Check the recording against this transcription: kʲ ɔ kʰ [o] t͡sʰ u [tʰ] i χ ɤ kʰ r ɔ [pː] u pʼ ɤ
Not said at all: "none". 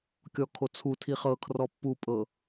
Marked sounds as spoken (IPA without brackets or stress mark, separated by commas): o, tʰ, pː